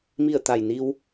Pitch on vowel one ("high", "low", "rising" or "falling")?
falling